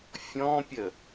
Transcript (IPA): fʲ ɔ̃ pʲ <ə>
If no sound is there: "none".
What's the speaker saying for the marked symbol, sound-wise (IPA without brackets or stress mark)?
ə